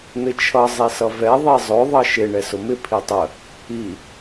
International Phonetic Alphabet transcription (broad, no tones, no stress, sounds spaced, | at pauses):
n̪ ɪ t͡ʃʰ ʌ zˤ i s ʌ v ɛ ðˤ i zˤ ʊ ðˤ ʌ ʃ ɪ ɳ ɛ s ʊ m ɪ pʰ i tˤ ə | i